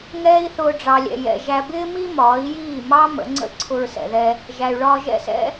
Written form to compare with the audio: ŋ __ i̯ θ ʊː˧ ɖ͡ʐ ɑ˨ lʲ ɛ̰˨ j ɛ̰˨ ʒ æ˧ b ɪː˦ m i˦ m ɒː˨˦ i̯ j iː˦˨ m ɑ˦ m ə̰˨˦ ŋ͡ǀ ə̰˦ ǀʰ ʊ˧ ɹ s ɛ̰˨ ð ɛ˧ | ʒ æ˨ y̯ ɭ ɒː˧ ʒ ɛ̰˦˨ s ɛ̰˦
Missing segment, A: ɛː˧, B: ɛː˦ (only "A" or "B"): B